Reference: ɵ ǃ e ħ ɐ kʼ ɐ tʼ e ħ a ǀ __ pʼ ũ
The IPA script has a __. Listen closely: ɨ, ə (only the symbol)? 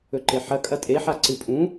ɨ